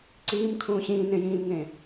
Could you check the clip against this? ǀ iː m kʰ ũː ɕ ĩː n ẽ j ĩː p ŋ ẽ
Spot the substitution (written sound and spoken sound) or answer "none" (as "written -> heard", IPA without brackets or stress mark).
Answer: p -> m